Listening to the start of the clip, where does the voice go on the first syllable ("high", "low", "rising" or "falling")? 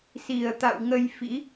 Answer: low